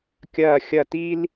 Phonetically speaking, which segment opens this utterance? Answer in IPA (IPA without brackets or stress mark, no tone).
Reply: kʲ